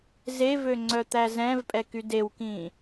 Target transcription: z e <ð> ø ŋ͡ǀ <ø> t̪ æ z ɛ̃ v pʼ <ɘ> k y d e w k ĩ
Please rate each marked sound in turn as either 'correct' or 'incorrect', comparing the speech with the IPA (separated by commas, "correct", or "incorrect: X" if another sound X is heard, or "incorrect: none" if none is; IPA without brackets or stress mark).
incorrect: v, incorrect: œ, incorrect: ɛ